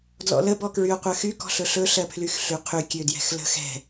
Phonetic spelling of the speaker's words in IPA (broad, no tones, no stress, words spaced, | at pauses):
dlɔ̰lə bɔkɹyo̯qʷɜxy kɔ̤ɬɵɬɵ ɬɜpʰlyxɬyqʰy kʲødjɛ̤xlə̤ xɛ̤